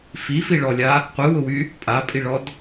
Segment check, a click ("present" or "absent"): absent